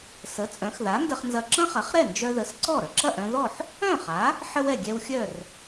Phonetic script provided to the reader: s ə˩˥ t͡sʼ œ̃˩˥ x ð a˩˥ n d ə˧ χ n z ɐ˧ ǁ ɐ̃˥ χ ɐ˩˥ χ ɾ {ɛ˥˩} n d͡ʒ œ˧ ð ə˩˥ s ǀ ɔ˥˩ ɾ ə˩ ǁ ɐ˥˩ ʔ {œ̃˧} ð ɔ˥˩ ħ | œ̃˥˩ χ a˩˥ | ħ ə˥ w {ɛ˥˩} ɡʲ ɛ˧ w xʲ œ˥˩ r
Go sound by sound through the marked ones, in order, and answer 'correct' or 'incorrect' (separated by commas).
correct, correct, correct